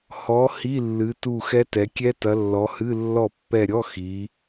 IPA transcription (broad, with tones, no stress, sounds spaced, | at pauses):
h ɔ˨˦ h i˧˥˧ lː ɨ˨˦ t u˦˨ x ɛ˦˥ t ɛ˨˦ kʲ ɛ˦˥ t ɐ˨˦ lː ɔ˨˦ h ɨ˧˥˧ lː ɔ˦˨ pː ɛ˦˨ ɾʲ ɔ˧˥˧ x i˨˦